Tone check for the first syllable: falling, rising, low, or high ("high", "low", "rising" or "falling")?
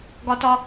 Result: high